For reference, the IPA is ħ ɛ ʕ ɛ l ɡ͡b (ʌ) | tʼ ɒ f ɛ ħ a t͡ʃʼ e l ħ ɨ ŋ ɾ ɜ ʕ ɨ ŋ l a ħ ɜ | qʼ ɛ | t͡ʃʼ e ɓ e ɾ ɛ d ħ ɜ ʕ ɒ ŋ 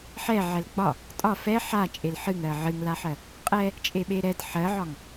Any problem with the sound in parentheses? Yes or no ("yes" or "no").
yes